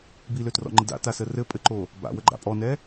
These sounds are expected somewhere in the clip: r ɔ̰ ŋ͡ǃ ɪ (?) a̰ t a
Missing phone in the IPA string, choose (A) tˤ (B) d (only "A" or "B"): B